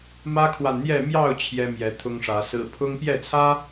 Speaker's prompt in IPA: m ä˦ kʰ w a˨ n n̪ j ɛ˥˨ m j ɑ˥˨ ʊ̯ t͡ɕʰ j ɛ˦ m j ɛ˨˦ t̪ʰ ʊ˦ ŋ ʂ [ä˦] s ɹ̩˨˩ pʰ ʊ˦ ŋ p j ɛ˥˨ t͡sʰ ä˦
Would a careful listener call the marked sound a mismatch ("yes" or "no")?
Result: yes